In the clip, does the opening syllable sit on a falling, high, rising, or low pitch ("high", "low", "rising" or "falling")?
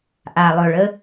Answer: low